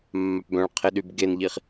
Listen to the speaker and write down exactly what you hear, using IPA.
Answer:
mːapbœ̃ɭqʰeɗyb ɡenʎiχ

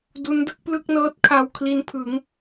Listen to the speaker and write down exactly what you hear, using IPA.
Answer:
du˦˥ndɯ˥˩k̚plɯ˥˩k̚ nɤː˦˥t̚kʰa˧w kʰli˦˥npʰɯ˩˦ŋ

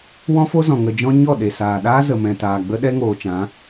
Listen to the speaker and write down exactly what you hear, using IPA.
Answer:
wɔ̃˦fo˦zɔ̃˨ ŋə˨d͡ʒɔ̃˧ ɲɔ˦˨ ɗe˨saː˨ɗaː˦ zə˨mɛ̃˨taː˨ɡ͡bə˦ ɗɛ˦ŋoː˨ t͡ʃã˨˦

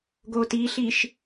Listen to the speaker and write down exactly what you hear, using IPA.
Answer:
ɡotiɬiʃ

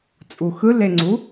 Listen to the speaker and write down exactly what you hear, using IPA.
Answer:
t͡sʼuxɯleŋ͡ǀu

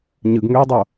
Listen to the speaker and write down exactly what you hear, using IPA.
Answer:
ɲɯɡŋøu̯dˤo

